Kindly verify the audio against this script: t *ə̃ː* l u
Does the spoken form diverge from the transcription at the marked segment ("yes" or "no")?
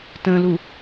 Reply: no